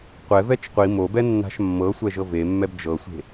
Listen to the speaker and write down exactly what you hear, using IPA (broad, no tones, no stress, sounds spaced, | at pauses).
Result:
qʷ ɛ v ɛ t͡ʃ qʷ i m o b ɛ nː a̤ ʃ mː ɤ sʷ ɛ ʒ ɤ v e mː ɛ b d͡ʒ ɤ sʷ e̤